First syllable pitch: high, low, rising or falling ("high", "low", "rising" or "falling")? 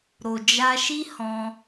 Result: low